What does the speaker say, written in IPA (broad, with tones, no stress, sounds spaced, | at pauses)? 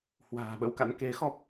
h w a̤ː˨˩ ɓ ə̰˧˥ w k a̰˧˥ n k e˨˦ x ɔ˦˥ p̚